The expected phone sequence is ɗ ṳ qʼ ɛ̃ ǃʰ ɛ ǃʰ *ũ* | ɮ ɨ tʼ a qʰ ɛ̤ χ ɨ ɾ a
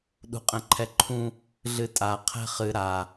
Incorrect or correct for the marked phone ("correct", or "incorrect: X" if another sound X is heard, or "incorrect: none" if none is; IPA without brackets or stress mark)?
correct